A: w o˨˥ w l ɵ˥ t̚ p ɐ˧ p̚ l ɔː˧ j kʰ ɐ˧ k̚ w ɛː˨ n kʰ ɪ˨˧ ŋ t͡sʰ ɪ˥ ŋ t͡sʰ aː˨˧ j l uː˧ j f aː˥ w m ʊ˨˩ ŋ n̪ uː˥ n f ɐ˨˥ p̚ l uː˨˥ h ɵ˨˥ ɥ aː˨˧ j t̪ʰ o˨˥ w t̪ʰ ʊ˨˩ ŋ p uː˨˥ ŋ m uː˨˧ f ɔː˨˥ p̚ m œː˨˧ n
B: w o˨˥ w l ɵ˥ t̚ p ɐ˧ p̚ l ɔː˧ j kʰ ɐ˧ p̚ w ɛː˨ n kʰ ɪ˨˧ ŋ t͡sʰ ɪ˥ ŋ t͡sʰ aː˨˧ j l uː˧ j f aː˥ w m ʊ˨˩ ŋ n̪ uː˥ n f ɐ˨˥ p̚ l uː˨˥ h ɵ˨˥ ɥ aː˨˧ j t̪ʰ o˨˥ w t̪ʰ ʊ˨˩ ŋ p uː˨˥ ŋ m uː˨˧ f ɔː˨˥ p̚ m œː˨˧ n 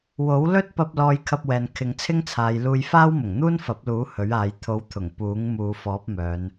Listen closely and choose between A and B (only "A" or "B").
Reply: B